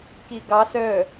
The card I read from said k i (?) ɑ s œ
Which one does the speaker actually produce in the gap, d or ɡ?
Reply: ɡ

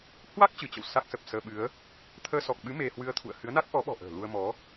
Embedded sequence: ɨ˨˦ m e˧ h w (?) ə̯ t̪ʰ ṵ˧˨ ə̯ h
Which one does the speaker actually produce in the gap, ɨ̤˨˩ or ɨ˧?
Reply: ɨ˧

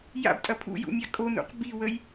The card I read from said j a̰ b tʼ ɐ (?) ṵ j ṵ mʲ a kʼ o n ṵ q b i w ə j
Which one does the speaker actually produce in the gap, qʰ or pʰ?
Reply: pʰ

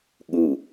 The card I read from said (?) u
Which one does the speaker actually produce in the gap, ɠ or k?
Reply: ɠ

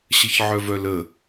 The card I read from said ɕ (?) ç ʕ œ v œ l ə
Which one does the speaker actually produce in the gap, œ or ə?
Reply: ə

